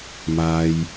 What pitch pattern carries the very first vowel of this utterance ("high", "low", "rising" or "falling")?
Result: low